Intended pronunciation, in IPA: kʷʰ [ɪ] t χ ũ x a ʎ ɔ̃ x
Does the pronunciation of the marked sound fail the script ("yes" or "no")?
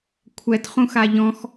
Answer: yes